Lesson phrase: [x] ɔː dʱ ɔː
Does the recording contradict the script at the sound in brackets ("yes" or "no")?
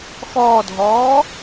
no